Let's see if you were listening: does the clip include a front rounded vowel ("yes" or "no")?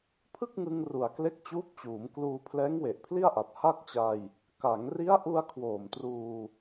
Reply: no